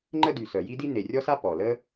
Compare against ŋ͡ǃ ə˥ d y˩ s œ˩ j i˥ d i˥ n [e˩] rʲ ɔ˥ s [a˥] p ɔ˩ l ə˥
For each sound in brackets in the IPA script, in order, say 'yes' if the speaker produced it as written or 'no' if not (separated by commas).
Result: yes, yes